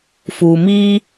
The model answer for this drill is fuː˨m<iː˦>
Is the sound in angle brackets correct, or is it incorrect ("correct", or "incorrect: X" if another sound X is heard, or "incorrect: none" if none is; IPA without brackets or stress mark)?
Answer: correct